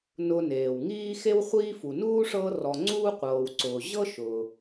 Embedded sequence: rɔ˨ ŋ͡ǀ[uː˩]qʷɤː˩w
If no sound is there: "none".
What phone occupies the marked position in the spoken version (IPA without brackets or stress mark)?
uː˥